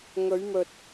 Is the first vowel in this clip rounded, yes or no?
yes